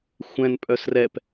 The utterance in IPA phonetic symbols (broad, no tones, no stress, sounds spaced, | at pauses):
xʷ ɛ̃ n pʼ œ s r ɛ p